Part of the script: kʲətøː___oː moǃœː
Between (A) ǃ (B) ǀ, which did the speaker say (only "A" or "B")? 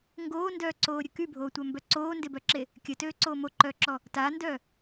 B